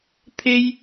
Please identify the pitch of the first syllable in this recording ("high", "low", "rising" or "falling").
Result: high